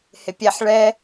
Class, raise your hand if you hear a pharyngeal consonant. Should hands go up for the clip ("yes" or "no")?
yes